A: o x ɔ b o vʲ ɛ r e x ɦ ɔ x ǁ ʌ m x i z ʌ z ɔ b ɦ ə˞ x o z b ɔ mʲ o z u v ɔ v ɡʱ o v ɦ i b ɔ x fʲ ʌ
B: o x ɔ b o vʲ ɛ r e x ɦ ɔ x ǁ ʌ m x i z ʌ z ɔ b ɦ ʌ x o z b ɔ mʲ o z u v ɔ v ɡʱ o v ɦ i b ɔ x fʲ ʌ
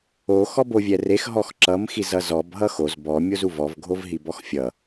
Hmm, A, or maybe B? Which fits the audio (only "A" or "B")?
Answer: B